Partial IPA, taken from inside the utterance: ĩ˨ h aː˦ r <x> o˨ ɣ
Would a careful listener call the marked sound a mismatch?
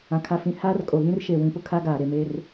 yes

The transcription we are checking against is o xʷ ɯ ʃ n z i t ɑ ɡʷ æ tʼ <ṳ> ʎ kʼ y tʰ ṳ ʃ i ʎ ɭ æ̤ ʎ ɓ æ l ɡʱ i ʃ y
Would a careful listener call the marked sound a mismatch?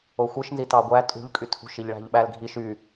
no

